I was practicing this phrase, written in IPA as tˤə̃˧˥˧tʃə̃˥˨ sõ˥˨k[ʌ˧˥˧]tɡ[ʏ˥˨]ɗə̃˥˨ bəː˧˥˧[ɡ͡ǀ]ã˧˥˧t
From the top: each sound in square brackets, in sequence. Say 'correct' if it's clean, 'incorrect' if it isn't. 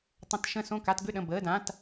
incorrect, correct, incorrect

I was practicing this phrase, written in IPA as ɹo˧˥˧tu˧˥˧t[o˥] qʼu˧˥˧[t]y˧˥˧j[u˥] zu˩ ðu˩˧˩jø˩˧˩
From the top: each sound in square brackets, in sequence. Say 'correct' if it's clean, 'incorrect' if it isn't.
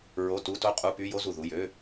correct, incorrect, incorrect

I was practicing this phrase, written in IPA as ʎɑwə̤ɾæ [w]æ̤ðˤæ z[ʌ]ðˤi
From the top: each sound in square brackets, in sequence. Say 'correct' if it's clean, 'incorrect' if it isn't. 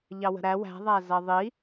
correct, correct

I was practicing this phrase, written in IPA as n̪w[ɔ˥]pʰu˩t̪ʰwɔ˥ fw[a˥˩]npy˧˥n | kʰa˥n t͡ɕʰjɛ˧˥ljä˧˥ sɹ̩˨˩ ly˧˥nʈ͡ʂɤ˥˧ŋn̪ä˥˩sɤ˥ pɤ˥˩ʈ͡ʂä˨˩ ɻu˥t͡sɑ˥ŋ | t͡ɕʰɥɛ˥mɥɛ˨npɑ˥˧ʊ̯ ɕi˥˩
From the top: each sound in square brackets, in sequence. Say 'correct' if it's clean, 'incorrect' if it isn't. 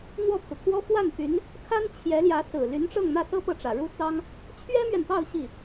incorrect, correct

